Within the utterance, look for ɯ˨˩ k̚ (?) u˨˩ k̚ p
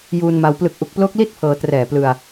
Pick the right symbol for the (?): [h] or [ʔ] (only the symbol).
ʔ